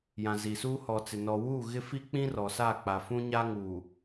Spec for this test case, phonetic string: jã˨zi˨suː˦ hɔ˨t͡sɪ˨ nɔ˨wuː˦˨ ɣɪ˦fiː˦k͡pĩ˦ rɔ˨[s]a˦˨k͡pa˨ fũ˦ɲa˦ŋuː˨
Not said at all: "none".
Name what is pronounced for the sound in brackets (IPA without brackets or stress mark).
s